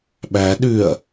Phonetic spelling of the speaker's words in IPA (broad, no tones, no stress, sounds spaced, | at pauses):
ɓ æ ɗ ʉ ɐ̯